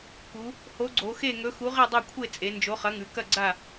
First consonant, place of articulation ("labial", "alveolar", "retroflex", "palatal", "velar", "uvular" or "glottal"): velar